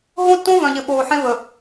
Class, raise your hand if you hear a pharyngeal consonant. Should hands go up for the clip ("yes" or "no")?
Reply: yes